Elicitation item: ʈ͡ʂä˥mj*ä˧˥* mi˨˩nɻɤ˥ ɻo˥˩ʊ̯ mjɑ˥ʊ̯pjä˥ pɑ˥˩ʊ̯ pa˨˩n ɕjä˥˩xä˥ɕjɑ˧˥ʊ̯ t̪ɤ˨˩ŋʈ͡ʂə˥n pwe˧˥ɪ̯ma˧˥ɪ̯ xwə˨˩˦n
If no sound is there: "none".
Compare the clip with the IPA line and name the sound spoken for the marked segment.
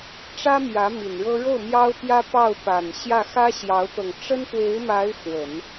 ä˧˥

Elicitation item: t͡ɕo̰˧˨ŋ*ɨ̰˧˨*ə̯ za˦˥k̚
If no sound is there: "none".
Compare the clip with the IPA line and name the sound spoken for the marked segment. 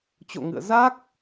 ɨ̰˧˨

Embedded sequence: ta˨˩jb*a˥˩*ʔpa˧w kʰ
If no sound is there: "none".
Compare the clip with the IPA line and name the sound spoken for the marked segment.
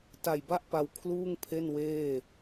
a˥˩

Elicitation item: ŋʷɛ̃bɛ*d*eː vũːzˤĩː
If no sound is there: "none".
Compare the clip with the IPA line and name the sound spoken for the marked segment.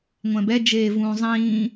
d͡ʒ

